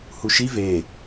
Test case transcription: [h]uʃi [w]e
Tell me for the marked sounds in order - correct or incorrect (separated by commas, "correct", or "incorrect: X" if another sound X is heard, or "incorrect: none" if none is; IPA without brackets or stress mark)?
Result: correct, incorrect: v